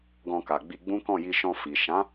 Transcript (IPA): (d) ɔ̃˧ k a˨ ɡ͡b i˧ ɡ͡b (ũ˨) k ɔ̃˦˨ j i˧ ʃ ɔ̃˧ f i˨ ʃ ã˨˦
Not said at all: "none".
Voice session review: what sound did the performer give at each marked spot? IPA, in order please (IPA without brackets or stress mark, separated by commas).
ɡ, ũ˦